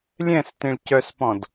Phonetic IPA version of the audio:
lʲ ɛ̃ s t ĩ ɭ c œ s p ɔ̃ d

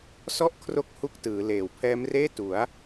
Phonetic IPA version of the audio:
s ɔ˥˩ ʔ kʰ r o˦˥ k̚ h u˦˥ k̚ t ɯː˩˦ l eː˨˩ w pʰ ɛː˦˥ m r eː˥˩ t u˩˦ a̯

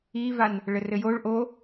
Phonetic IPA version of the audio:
i v a n | ɭ ɘ r ɘ j o ɭ ʔ o

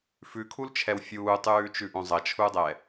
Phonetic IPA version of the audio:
f ʉ kʰ u l t͡ʃʰ ɛ w fʲ uː tˤ ʉː t͡ʃ ʉ ʔ õ zˤ ɐ t͡ʃʰ u dˤ ɛ

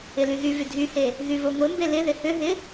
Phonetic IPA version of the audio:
ɪ l y ɣ y v y dʱ y h e | ɣ y v o ŋʷ e m b e l ɪ ð ɪ h ʏ ɦ ɪ

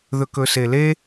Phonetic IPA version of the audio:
ð ɵ k ɵ s e l e

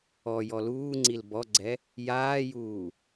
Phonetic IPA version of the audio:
ɔ j ɔ l uː ŋ͡ǀ i l b ɔ ɡ͡ǀ ɛ | j aː j uː

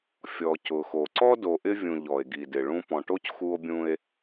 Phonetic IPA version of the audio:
fʲ ɔ˨ c ʊ˨ x o˨ ǀ ɔ˦ d o˨ ʔ ɪ˦ vʲ ũ˨ ʎ ɔ˨ e̯ ɡ i˨ d ɪ˨ ɭ ũ˦ p ɔ̃˨ ʈ o˦ c x u˦ o̯ bʲ ũ˦ e̯

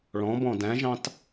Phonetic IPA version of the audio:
ɭ ɔ̃ b ɔ̃ d æ̃ ʒ ɑ̃ t

